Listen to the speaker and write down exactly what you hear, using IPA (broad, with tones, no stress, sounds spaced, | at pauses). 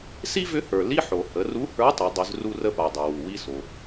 s i˥ v ʏ˧˥ h ə˞˩ l i˥ ħ o˩ h ə˩˧ r u˧˥ h ə˞˧˥ tˤ ʏ˩˧ dˤ ʏ˩˧ z r u˧ r ə˧ p a˩ dˤ ʏ˩ w u˩ w i˧ s o˩